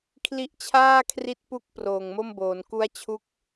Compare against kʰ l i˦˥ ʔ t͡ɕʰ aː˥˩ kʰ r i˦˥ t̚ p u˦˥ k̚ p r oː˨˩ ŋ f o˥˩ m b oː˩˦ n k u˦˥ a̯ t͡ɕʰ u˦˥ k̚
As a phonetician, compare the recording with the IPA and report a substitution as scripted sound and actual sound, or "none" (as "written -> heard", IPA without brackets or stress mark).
f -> m